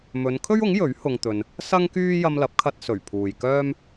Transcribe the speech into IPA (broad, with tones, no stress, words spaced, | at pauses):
mɵ˨˧n kʰɵ˥ɥʊ˨˥ŋ jɵ˨˥ɥ hʊ˧ŋt̪ɵ˧n | sɐ˥ŋkyː˥ jɐ˧mlɐ˨˥p̚kʰɐ˧t̚ sɵ˨˩ɥpʰuː˨jkœː˥m